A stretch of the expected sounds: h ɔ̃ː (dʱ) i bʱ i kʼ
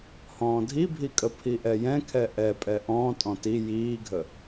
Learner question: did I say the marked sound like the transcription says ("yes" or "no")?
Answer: yes